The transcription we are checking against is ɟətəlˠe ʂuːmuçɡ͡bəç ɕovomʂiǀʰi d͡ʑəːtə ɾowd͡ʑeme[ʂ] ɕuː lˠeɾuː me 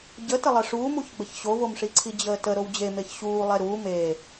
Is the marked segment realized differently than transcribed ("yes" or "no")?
yes